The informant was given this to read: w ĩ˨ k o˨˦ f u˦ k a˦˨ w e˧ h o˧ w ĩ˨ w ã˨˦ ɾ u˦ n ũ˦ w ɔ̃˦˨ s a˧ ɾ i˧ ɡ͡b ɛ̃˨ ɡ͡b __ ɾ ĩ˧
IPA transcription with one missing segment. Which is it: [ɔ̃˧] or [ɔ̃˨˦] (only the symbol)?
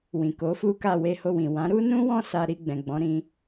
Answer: ɔ̃˨˦